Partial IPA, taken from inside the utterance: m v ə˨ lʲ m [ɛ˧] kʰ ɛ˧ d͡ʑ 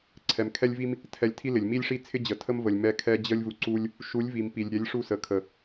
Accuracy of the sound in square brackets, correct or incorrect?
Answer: correct